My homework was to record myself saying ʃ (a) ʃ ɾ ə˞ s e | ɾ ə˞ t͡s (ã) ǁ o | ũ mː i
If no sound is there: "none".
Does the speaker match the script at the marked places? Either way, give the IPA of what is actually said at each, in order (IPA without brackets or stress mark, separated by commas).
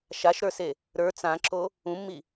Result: a, ã